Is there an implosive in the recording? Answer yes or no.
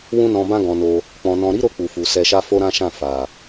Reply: no